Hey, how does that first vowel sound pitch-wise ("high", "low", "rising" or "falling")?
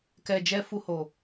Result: low